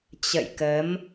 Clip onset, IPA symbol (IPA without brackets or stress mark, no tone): t͡ɕ